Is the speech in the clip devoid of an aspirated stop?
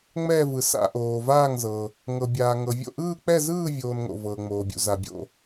yes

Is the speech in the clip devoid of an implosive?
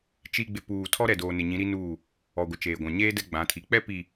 yes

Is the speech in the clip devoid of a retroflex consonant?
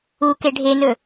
no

